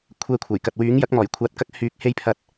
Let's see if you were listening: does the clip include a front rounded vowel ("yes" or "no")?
yes